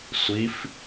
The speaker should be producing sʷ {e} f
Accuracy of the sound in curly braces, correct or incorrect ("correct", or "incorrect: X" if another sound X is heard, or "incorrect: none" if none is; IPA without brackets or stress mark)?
incorrect: i